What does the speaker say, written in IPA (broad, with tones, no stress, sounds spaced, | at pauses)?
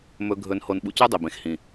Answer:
m ɵ˧ ɡʱ ɵ˧ n h o˧ n ɓ ṵ˧ c u˦ dˤ i˨ b ẽ˨ x h ĩ˨